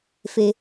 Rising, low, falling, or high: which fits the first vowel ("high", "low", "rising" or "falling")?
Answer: high